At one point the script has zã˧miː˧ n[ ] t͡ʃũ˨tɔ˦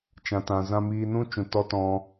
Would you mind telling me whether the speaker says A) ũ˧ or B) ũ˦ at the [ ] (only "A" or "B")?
B